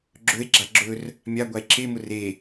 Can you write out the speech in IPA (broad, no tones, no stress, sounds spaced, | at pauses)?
ɡ͡ǁ ɵ e̯ ɡ͡ǁ a ɡ͡ǁ ɵ r | mʲ a ɡʷ a e̯ ǁ e m ʊ r e